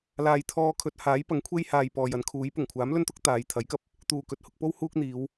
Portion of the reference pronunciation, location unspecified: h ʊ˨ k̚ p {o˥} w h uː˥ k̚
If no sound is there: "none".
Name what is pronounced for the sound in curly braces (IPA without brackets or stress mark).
o˥